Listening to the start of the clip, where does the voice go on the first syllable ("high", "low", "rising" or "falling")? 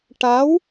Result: rising